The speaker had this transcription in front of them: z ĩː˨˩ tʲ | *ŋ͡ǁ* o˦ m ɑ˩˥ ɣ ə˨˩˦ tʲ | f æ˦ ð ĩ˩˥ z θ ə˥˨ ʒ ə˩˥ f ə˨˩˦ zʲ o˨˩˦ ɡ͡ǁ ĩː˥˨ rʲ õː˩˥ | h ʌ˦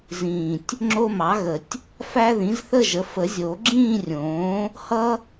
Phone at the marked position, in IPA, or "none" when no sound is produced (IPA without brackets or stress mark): ŋ͡ǁ